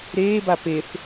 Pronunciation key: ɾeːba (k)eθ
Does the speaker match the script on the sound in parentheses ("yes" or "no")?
no